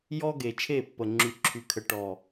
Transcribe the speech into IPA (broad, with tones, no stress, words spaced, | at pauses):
jɔ˦ɡe˨t͡ʃʰe˦˨pːə˨ ŋ͡ǁy˨ǁʰy˨kʰə˨ ʈɔ˨